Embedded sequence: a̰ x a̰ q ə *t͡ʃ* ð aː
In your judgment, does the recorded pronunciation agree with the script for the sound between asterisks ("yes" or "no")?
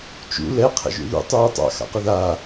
no